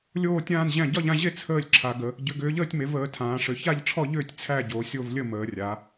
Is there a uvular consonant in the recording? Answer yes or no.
no